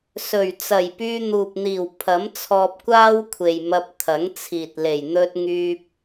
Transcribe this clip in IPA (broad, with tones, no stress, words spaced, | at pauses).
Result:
sɵ˨˩ɥ t͡sɐ˨˩jpyː˧n̪uː˨p̚n̪iː˨˩w pʰɐ˨˥mt͡sʰɔː˧p̚kʷaː˥wkʷʰe˨j mɐ˧p̚ t̪ʰɐ˨˥ŋt͡sʰiː˨t̚ le˨˩j n̪ɵ˧t̚ŋyː˧p̚